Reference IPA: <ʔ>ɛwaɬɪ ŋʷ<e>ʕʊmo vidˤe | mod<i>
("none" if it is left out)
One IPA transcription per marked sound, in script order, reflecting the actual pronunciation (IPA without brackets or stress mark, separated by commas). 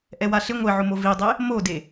ʔ, e, e